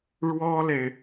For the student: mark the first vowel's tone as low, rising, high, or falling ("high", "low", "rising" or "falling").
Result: high